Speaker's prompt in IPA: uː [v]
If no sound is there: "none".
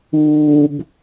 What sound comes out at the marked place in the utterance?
b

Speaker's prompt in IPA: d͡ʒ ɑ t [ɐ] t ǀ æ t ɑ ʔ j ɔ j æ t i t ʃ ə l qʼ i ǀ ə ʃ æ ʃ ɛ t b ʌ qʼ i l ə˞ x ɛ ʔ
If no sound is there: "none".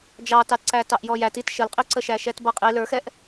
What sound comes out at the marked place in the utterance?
ɑ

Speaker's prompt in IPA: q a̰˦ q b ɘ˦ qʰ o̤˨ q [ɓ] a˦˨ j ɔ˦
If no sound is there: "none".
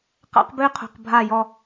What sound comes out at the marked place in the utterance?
bʱ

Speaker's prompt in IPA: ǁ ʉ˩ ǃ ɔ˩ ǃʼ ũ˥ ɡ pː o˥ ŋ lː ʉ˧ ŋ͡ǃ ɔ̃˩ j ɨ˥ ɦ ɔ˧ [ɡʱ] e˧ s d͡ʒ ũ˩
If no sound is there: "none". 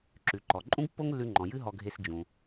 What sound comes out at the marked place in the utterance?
ɡʱ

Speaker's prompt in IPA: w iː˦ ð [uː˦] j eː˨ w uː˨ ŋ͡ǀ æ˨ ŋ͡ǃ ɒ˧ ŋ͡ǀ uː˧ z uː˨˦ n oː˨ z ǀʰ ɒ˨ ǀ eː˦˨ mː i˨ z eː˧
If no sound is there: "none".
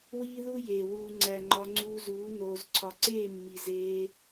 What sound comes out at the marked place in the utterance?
u˦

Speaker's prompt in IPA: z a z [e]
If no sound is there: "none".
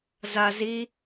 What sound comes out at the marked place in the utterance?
i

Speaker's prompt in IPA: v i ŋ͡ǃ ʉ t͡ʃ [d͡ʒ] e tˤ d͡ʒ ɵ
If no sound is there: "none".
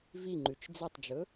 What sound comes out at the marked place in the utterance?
d͡z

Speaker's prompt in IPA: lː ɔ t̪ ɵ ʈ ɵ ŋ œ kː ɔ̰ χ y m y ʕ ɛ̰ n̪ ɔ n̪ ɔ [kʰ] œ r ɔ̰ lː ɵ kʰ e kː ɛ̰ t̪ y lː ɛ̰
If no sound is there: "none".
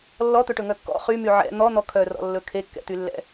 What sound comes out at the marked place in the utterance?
kʰ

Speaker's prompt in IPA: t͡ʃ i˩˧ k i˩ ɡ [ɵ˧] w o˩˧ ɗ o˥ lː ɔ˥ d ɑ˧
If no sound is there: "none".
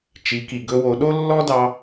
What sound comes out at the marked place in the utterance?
ɵ˧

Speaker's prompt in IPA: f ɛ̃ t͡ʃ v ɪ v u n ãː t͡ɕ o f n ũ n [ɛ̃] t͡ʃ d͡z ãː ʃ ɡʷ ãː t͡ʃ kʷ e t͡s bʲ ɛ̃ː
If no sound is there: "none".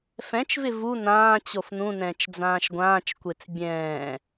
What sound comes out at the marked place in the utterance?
ɛ̃ː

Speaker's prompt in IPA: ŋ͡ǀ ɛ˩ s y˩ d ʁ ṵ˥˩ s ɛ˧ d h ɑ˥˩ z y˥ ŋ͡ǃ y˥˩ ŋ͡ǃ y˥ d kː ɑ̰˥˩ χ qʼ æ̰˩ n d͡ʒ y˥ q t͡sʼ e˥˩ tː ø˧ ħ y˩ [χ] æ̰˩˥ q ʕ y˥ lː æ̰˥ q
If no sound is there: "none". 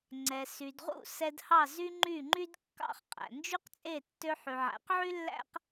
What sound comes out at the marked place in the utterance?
ʕ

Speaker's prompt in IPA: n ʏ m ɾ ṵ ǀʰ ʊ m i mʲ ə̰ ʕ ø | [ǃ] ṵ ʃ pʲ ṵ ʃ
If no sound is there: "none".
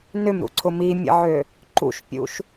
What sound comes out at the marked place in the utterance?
ǃ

